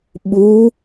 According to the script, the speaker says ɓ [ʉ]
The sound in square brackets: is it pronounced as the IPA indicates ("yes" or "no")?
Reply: no